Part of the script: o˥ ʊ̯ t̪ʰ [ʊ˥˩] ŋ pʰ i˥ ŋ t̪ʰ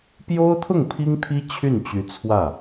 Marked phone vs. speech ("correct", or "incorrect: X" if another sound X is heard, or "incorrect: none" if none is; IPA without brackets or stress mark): correct